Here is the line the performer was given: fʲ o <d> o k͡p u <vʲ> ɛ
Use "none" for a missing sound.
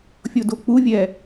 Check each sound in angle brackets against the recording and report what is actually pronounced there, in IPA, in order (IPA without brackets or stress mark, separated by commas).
d, vʲ